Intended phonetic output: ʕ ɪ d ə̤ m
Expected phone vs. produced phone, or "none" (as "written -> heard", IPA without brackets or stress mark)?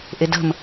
ʕ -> ʔ